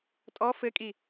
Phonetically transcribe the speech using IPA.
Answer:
tʼɔ fɘkʼi

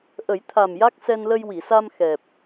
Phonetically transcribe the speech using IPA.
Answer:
ʔə˨˩˦jt̪ʰa˨˩m ja˦˥k̚sɛ˧nlə˧j wi˨˩˨sa˧m xɛ˨˩p̚

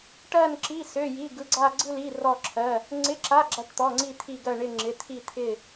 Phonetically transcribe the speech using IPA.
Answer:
ʈɜ˥˧nǁi˧˥˧ sø˧˥˧ji˧˥˧ ɡɯ˧˥˧ɡ͡ǀa˥˧ɡ͡ǀɯ˥˧li˧˥˧ rɔ˥˧ǁʰɜ˧˥˧ | ŋ͡ǀɪ˧˥˧ǁa˧˥˧ ɡ͡ǁa˥˧ʈt̪ɔ˧˥˧ŋ͡ǀi˥˧ t̪ʰi˥˧ɡɜ˥˧ɳɪ˥˧ ŋ͡ǁɪ˧˥˧t̪ʰi˥˧ t̪ʰɪ˥˧

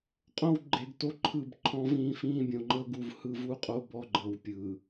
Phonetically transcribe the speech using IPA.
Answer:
qʼõ˦w ɡ͡ǃe˨ɡto˦ǃʰɯ˦˨b ǃʰɔ̃˦vĩː˦ fĩː˦bʲõ˨ŋ͡ǃɤ˦ ɡu˨vhɯ˦˨vu˦qʼo˦ bɔ˦ɡ͡ǃɤ˨w pʲɯ˨

